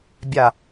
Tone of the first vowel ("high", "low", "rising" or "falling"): low